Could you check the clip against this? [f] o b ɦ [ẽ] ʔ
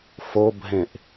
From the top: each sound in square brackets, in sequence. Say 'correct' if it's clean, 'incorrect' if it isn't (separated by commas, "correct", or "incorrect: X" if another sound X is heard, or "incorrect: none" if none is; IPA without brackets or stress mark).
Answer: correct, correct